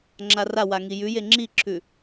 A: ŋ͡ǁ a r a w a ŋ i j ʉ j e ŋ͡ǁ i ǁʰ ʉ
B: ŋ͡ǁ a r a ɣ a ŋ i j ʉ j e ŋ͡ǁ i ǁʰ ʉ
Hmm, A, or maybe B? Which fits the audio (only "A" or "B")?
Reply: A